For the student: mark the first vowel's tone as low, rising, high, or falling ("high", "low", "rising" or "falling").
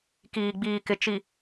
low